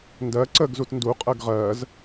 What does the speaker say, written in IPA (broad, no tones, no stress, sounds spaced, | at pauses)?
n d ɜ ǀ ə ɡ z u t n d u qʼ ɜ ɡ ʁ ɜ z